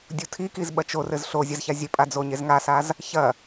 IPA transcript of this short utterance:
dʲ u tʰ i k i z ɓ ɐ t͡ʃ o r ɘ z ɬ o zʲ ɐ z ç a zʲ ɘ pʼ a d͡z o ɲ e z ŋ a s a z | ç ɐ

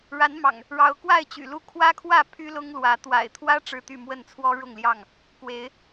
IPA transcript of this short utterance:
ɻ a˨˦ n m ɑ̰˨˩ ŋ | ɻ ɑ˨˦ ʊ̯ k w a˥˨ ɪ̯ t͡ɕ y̰˨˩ l u˥˨ kʰ w ä˦ kʰ w ä˥˨ pʰ y˦ l ʊ˦ ŋ l w ä˨˦ t̪ w a̰˨˩ ɪ̯ t̪ʰ w ä˦ ʈ͡ʂ ɻ̩˦ t̪ y˥˨ m w ə˥˨ n t͡sʰ w ɔ˦ ɻ ʊ˥˨ ŋ l j ɑ˥˨ ŋ | k w e˨˦ ɪ̯

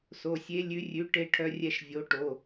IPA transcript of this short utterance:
s o˩˧˩ sʲ e˨˥ lʲ ʉ˨˥ rʲ ʉ˨˥ ʈ e˦ ʈʰ œ˦ rʲ ɛ˦˨ ʃ vʲ o˨˥ ʈ o˩˧˩

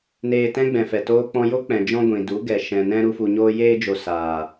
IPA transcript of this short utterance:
n eː˧ t ɛ̃˦ ɡ͡b ɛ̃˨ f ɛ˨ t oː˧ k͡p ɔ̃˧ j o˦ k͡p ɛ̃˨ d͡ʒ ɔ̃˧ ɡʷ ĩ˨ d u˨˦ ɡ ɛ˨ ʃ ɛ̃˨ n ɛ̃˧ ɾ u˧ f u˨ ɲ oː˧ j eː˧ d͡ʒ o˨ s aː˨

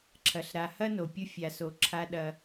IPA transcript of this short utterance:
ǁʰ ɐ˩ ɬ ɾ a˨ h ɐ˥ n o˩ pʲ u˦ fʲ a˨ s o˨ ǁʰ a˥ ɗ ɐ˦

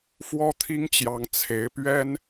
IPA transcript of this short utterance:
f w ɔ˥ t̪ʰ i˥ ŋ t͡ɕ j ɑ˧˥ ŋ t͡sʰ e˧˥ ɪ̯ p ɥ ɛ˥ n

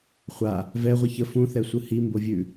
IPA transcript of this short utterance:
χʷ a | v ɛ ʁʷ ə ç ə f ũ θ ɛ sʷ ɯ h i m b o vʲ ʉ

